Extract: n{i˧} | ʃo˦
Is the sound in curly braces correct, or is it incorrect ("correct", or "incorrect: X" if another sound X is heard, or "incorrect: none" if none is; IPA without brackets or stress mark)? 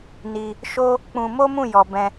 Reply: correct